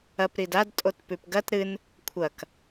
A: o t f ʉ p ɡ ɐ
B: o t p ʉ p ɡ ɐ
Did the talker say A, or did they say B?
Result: B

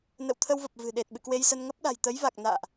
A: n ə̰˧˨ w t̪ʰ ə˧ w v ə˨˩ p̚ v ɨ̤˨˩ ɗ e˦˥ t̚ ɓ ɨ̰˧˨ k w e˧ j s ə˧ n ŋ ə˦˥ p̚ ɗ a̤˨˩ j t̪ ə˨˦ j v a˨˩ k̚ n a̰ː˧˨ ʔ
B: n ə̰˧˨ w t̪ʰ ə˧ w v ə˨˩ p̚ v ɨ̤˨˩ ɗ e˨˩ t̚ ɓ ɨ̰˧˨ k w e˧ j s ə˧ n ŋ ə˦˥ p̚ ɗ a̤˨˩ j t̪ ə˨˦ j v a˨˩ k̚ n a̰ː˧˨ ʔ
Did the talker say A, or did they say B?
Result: B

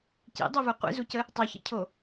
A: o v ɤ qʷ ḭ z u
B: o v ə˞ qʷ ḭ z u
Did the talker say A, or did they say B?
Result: B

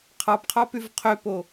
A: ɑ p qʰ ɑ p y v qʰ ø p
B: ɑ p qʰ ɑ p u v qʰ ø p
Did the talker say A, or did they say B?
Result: A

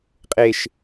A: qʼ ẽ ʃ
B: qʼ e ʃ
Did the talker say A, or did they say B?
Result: B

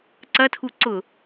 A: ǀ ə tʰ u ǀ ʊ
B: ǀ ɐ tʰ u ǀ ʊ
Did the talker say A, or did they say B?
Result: B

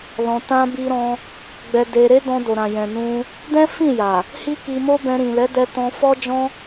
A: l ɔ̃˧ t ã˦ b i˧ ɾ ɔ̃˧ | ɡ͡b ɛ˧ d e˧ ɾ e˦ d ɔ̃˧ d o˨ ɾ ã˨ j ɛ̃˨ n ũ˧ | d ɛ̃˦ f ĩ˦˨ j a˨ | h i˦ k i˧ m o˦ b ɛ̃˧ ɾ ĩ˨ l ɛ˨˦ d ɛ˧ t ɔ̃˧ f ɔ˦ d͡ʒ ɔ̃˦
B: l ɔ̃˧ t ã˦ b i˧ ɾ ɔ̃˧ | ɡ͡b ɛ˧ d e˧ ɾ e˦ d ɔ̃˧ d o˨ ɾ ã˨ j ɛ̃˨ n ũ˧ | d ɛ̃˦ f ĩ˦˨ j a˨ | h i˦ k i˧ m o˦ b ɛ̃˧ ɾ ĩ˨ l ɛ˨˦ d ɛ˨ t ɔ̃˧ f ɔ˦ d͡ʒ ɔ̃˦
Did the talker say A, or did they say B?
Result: A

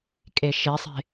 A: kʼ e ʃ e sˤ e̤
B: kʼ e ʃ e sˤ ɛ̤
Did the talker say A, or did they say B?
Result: A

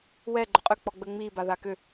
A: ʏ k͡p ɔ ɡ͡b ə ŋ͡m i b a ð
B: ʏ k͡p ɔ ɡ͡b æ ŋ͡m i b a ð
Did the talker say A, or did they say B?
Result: A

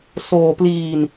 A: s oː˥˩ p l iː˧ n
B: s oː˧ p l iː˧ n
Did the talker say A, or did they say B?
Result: B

